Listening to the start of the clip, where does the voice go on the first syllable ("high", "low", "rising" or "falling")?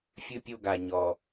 high